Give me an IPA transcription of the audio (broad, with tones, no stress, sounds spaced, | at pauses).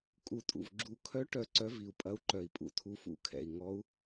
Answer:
kʼ u˨˩ tʼ ṵ˨˩ v ɡ͡ǁ u˨˩ kʰ œ˧˥ ʈ œ˧˥ ǀ œ˧˥ v i˨˩ u̯ pʼ ɐ˧˥ u̯ ǃ œ˨˩ i̯ pʼ ṵ˨˩ tʰ u˧˥ f ṵ˧˥ kʰ ɛ̰˨˩ i̯ ŋ ɔ˧˥ u̯